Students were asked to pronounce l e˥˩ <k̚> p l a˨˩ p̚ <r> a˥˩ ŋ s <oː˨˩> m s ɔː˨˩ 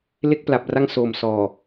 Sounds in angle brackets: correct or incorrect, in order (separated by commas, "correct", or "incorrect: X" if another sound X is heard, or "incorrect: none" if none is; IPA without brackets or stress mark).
correct, correct, correct